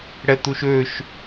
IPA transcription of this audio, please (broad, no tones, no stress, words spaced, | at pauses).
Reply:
ɽɛt̪uʃøʃ